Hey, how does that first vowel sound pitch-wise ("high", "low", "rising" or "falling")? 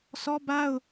high